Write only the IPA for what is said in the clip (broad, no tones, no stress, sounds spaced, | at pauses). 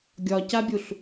ɡʲ ɒ c a bʲ u ɬ